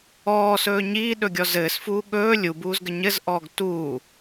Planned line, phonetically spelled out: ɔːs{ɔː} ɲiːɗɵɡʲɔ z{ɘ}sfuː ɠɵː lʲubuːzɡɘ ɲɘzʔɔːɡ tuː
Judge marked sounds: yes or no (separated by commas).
no, no